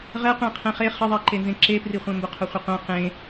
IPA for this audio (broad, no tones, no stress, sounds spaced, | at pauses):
ʁ ɛ qʷ ẽ qʰ ɛ̃ χ e χ ɪ ðˤ e ǃ e n z ẽ ǁ e p r i χʷ ɛ̃ m b ʊ qʰ ʊ χʷ ɪ qʷ ɛ̃ q ẽ